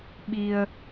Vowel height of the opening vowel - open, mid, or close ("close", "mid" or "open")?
close